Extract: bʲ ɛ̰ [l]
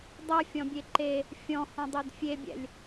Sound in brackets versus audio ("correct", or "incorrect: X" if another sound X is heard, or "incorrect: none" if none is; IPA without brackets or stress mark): incorrect: lʲ